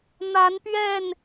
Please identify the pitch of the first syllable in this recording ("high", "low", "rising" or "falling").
rising